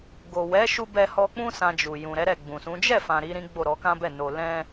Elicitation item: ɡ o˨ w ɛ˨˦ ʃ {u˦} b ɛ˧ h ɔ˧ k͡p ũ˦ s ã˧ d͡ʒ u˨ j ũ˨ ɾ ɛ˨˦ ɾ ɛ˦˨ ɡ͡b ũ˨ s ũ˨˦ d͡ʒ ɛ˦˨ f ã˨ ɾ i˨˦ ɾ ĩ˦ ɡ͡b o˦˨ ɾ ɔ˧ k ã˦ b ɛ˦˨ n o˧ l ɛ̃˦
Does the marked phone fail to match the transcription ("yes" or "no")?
yes